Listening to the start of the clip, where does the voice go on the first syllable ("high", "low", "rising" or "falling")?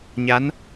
rising